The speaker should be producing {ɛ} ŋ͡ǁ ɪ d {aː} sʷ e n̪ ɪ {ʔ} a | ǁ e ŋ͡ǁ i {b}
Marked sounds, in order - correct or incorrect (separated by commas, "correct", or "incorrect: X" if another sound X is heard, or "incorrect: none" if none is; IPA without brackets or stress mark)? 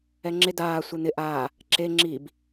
correct, correct, correct, correct